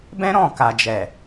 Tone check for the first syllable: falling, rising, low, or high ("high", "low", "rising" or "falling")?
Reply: high